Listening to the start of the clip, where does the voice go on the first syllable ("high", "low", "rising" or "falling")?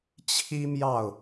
high